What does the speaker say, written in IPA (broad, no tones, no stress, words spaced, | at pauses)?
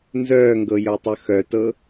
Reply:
nzœːŋɡɤjœtˤœ xœtɤ